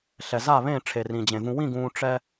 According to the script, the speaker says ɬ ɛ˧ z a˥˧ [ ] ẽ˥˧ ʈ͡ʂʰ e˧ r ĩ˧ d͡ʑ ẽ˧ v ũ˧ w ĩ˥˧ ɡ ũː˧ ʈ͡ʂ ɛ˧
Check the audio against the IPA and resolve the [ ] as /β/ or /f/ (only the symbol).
β